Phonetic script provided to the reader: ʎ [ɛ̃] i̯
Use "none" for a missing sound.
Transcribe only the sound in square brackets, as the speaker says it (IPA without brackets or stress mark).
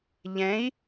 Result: ɛ̃